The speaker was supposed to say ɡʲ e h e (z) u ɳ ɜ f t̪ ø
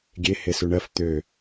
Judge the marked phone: incorrect: s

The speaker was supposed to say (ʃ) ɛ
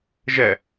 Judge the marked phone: incorrect: ʒ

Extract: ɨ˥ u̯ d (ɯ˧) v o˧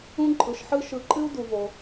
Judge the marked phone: incorrect: u˧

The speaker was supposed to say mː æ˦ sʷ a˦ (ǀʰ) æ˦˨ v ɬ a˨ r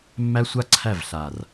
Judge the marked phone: correct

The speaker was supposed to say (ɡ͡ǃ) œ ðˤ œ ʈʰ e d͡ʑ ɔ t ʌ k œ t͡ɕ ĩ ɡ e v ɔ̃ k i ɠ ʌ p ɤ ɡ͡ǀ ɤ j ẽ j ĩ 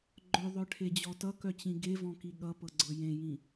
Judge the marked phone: correct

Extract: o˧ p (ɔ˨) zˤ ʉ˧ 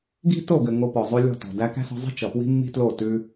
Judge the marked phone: correct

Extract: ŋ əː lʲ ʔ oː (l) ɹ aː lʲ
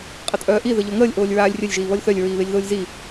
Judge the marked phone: incorrect: lʲ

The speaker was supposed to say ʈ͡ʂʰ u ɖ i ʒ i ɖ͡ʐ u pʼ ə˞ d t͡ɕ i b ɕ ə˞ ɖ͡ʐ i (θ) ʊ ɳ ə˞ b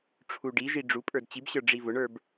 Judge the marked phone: incorrect: v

